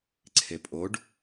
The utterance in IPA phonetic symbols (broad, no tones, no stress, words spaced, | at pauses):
ǀʰepʼoɖ